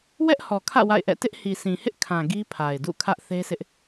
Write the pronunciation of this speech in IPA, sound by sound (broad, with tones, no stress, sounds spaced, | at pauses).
w ɛ˦ ʔ h ɔ˨ kʰ ä̰˦˨ w a̰˦˨ ɪ̯ ʔ ɛ̰˦˨ t ɪ˦ ʔ h i˨ s ĩ˨ h ɪ˦ ʔ kʰ ã˨ ɡ i˦ pʰ a˨ ɪ̯ d ṵ˦˨ kʰ ä˦ ʔ θ e˦ sʰ ɪ˦ ʔ